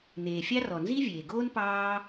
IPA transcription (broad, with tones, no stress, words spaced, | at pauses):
n̪eː˩fʲɑ˥ rɔ˩nzi˥vʲeː˩ɡoː˥n pɑː˥